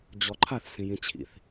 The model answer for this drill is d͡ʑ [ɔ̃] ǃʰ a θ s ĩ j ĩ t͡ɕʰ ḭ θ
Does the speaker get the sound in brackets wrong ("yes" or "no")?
yes